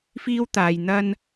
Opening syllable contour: high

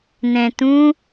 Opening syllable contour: low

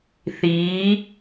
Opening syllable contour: rising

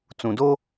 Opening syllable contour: low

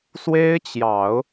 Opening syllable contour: high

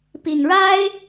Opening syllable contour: low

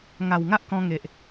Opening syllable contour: low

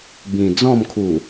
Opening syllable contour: low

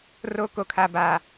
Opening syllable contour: high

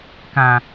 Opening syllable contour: low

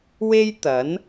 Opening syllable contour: high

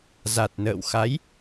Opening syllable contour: low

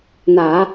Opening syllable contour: low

